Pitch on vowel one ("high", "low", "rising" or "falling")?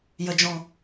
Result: low